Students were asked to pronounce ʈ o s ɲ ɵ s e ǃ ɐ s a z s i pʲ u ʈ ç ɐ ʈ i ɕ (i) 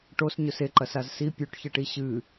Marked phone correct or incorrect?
incorrect: ɨ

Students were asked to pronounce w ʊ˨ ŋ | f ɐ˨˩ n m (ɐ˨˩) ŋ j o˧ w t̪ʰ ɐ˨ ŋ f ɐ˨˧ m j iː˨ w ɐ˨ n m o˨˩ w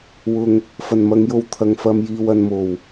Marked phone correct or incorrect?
incorrect: ɐ˨˧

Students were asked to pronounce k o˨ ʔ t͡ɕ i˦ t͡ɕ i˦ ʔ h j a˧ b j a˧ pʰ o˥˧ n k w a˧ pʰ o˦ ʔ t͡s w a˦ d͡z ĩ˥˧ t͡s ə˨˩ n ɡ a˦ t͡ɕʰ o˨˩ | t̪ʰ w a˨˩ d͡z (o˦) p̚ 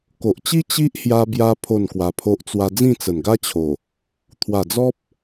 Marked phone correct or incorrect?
incorrect: ɔ˦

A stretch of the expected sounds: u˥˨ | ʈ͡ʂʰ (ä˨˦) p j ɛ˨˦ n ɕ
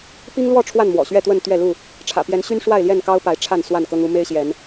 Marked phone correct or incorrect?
incorrect: ä̰˨˩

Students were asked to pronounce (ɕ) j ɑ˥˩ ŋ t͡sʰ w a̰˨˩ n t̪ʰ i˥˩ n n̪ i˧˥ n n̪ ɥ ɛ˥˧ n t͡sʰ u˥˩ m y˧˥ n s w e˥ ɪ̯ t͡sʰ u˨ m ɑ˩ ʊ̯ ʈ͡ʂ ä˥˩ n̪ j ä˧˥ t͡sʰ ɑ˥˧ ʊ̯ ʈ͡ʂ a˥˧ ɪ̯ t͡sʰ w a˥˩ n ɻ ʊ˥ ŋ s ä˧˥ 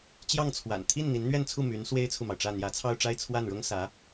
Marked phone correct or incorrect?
incorrect: t͡ɕ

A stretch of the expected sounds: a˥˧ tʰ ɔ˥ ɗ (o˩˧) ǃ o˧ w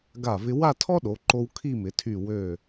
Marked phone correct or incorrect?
correct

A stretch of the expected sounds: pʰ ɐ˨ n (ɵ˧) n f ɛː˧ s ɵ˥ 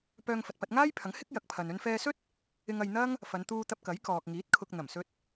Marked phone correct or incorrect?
correct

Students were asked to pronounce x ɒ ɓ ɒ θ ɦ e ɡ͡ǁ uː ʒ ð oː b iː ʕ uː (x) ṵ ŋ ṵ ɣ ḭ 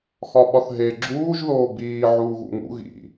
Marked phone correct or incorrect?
incorrect: ɣ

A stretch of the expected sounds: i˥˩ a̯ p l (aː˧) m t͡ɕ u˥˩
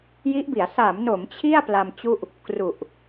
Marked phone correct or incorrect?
incorrect: a˧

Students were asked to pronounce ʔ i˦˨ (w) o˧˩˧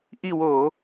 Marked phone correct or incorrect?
correct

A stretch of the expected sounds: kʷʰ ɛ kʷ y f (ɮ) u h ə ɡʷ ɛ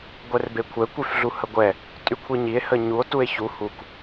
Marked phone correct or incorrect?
correct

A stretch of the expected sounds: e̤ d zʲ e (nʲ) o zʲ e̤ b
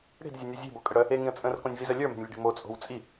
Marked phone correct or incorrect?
correct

